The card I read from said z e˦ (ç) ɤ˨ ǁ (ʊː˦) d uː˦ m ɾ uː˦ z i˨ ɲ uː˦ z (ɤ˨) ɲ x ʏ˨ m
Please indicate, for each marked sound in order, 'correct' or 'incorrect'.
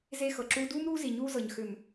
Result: incorrect: x, incorrect: uː˦, correct

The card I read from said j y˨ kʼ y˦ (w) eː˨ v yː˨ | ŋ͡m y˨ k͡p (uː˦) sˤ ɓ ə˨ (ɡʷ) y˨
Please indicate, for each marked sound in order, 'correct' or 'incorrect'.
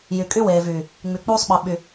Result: correct, correct, incorrect: ɓ

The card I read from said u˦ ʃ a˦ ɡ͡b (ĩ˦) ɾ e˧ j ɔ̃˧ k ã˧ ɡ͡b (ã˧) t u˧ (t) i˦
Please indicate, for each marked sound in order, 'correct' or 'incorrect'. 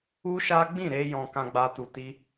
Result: incorrect: ĩ˦˨, incorrect: a˧, correct

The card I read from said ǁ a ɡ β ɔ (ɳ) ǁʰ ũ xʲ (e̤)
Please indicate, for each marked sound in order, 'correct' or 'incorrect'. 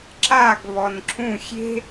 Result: incorrect: n, correct

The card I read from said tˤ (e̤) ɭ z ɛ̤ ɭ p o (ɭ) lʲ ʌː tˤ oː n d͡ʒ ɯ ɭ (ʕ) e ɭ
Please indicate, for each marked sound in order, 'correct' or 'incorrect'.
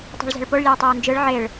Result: correct, correct, correct

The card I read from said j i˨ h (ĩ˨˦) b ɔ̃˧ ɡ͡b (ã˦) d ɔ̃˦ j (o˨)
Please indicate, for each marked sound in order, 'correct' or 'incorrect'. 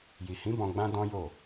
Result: correct, correct, incorrect: o˦˨

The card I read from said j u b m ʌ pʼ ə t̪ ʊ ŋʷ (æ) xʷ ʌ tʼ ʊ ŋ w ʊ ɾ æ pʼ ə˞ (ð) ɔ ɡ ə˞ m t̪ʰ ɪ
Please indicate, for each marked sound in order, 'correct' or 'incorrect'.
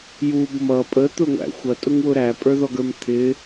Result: incorrect: æ̰, correct

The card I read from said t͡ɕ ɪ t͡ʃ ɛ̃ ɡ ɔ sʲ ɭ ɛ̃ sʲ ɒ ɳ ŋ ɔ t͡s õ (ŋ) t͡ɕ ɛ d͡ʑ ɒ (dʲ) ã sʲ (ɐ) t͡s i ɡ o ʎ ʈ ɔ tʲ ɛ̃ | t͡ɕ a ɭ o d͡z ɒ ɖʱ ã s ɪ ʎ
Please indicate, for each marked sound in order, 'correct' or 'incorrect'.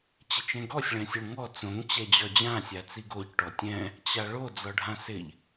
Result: correct, incorrect: d͡ʑ, incorrect: a

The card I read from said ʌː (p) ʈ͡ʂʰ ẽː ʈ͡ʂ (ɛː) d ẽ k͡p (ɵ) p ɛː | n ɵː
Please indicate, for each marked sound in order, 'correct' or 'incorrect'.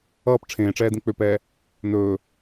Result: correct, correct, incorrect: ø

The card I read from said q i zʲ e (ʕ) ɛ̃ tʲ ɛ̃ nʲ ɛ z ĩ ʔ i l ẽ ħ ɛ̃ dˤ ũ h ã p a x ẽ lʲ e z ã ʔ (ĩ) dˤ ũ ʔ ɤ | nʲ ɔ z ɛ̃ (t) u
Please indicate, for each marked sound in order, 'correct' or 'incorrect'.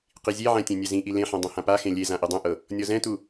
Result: correct, incorrect: i, correct

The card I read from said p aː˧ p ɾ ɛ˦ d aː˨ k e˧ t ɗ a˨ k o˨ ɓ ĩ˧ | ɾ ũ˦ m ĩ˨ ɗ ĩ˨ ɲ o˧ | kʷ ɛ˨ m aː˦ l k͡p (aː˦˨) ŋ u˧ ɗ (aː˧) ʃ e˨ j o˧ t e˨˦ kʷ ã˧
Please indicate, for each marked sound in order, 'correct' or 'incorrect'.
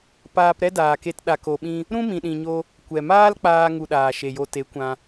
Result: incorrect: aː˧, incorrect: aː˨

